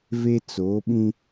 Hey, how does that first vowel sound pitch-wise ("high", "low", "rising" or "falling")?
high